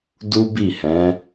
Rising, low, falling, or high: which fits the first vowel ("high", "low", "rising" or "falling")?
high